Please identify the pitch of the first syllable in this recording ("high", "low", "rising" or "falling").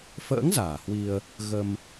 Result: rising